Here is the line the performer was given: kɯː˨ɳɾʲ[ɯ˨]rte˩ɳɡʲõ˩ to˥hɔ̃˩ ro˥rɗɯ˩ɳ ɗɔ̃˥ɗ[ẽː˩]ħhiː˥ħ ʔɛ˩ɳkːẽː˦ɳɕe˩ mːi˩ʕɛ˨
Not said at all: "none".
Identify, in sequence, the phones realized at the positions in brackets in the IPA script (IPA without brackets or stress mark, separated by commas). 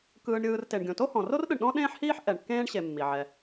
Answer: ɯː˨, ẽː˥